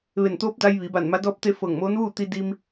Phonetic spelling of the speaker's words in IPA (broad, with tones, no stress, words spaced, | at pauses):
ʋe˧˩nt̪oː˧˥p̚da˧j ʋi˩˧ba˧˩n ma˧˥dɔː˥˨p̚t̪e˥˨ fɤː˧˩ŋmoː˧˥nʋuː˥˨ t̪i˧di˧m